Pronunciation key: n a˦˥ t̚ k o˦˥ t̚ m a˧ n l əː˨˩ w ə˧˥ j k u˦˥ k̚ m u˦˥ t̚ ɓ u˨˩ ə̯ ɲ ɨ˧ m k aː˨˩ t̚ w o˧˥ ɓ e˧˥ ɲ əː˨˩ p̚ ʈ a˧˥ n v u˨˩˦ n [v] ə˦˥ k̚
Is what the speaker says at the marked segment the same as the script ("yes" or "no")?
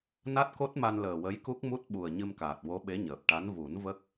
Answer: yes